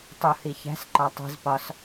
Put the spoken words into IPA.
tˤuhi çæ̤s ǃɒtˤi̤zpɒs

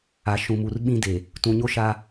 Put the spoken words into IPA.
a˨ ʃũ˨mu˨r ɓĩ˦deː˨ | tũ˨ɲo˦ʃaː˦

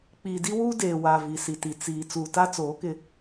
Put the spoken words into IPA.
k͡piː˨di˦wuː˦ deː˨ wa˨ vi˨si˨ti˨ t͡siː˨ t͡suː˨ta˦t͡soː˨˦ kɪ˦

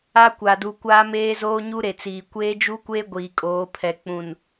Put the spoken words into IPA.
a˦kʷa˨du˨ kʷaː˦meː˦zoː˦ɲu˦ ɾe˨t͡siː˨ kʷeː˦d͡ʒu˦kʷeː˦ ɡʷiː˨kʼoː˨˦pʰɛ˨ k͡pũ˨n

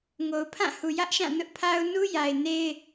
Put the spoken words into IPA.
ŋo˨ʊ̯pʰã˦˨hu˨ jä˦ʔʃã˦˨nʊ˦ʔ pʰa˦ʊ̯ nu˦ja˨ɪ̯ ne˦ɪ̯

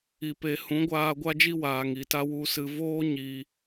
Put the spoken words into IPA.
i˨pe˨ hũ˨˦ɡʷaː˧ ɡʷa˦d͡ʒi˦ waː˨ŋi˨ta˦ wu˧sɨ˧ voː˦ ɲi˧

